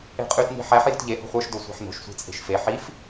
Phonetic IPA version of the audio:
e̤ qʼ y t n i̤ ħ æ ħ j o̤ t ʎ e h o̤ χʷ ə˞ ʃ d o sʷ æ̤ ħ n o̤ ʃ sʷ i̤ t͡sʼ e̤ ʃ f e ħ i f

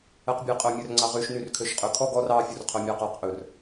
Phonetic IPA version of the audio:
ɛ q bʲ ɛ qʼ œ mʲ œ r ŋ͡ǀ ɑ ʁ y ʃ n y r kʰ ø ʃ qʼ ø kʰ ɔ ɡ ɔ r ɑ fʲ u r qʰ œ mʲ ɑ q ɑ q ʔ ɵ r

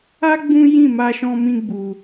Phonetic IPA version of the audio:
a˦ ɡ͡b ũ˦ j ĩ˦˨ m a˧ ʃ ɔ̃˧ m ĩ˧ ɡ͡b u˧

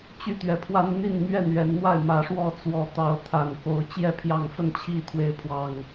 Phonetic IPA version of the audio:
t͡ɕ y˥˨ t̪ ɥ ɛ˨˩ pʰ w a˦ n n̪ i˥˨ n m ɥ ɛ˥˨ n ɥ ɛ˨˦ n n̪ w a˥˨ ɪ̯ m ä˨˦ ʂ w ɔ˥˨ t͡s w ɔ˨˦ t̪ ɑ˨˦ ʊ̯ t̪ʰ a˨˩ n k o˨˦ ʊ̯ t͡ɕ j ɛ˥˨ pʰ j ɑ˥˨ ŋ f ə˥˨ n t͡ɕʰ i˥˨ t̪ʰ w e˨˦ ɪ̯ pʰ w ɑ˨˩ ŋ

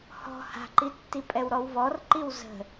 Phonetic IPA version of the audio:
h ɔ̤ h a̤ ǃ i tː i pʼ ɛ w ɾ ɔ w v ɔ r ǃ i w z ə̤

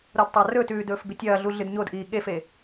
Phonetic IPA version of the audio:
ɾ o d tˤ a r ɵː t ʉː d ɵː f b i tʲ ɐː ɮ u ɮ ɨ d ɲ o d ʔ iː ɠ e f e

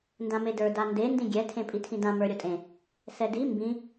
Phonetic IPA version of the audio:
n d ã m e d ə˞ d a n d e n d ĩ ɡʲ ɛ tʰ ẽ pʼ i tʰ ĩ d ã m ə˞ ɾʲ o tʼ ẽ | s ɛ d i m b ĩ

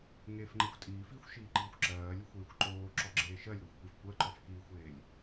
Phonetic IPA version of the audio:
ŋ eː f ŋ͡ǃ e xʷ tʼ iː f iː xʷ ʃ iː ǃ iː xʷ ǁ ɜː lʲ e xʷ eː xʷ ǃ oː ǁ ɔ ɡ͡ǁ eː ʃ ɜ lʲ ɾ ɔ xʷ kʷ e f kʷ ɜ ǃ ɔ f k iː xʷ eː lʲ

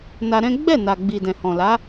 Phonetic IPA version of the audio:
n a˧ ɾ ɛ̃˦ ɡ͡b ɛ˦˨ n a˨ ɡ͡b i˨ d ɛ̃˨ h ɔ̃˨ l a˨˦

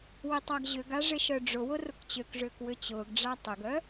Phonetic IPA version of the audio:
w ɪ tˤ a ɡ ʑ ʏ ɡ a ʐ ɪ ʃ œ ɖ͡ʐ ʊ w ʊ r ʊ k t͡ɕ ø k ʐ ʏː k w ʏ t͡ɕ ʊː ɡ ɖ͡ʐ a tˤ ʏ ɡ œ

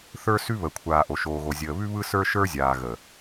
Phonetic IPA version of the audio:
θ ə˞˦ s ʉ˦ β ə˨ kʷʰ aː˨ ʔ o˨ ʃ oː˨ ɣ o˨ zʲ əː˨ β ʉ˦ β ɯ˦ s ə˞˦ ʃ ə˞˦ zʲ aː˨ ɣ ə˨

